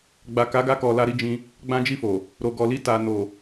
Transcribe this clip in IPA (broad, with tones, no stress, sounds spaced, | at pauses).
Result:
ɡ͡b a˨ k a˨˦ ɡ a˧ k ɔ˨ l a˧ ɾ i˧ d͡ʒ ĩ˧ | ɡ͡b ã˦ d͡ʒ i˦˨ f o˨ | ɾ o˨ ɡ ɔ˨ l i˧ t a˨ n o˨